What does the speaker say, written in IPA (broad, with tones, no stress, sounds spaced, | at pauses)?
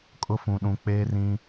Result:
kʼ ʊ˦ f ũ˨ ɗ ũ˨ k͡p eː˦ r ĩ˦